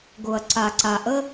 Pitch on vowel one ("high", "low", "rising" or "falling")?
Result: low